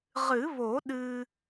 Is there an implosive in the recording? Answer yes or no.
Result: yes